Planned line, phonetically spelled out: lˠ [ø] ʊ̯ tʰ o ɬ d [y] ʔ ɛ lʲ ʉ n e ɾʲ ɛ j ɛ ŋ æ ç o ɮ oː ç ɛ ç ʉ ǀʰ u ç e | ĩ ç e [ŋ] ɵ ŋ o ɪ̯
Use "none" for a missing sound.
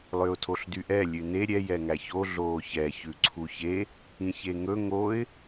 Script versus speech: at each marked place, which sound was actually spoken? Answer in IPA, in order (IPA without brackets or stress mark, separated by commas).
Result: ø, y, ŋ